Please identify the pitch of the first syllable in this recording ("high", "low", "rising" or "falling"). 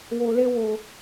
low